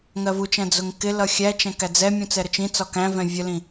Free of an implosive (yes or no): yes